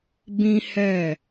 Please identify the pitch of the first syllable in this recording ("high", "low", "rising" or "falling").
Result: high